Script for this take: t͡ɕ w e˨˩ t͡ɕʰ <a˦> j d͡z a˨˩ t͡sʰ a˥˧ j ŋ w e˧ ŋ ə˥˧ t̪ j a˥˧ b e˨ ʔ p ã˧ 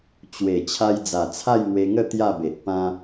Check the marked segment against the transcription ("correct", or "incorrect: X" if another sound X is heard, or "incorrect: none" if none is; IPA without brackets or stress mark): incorrect: a˧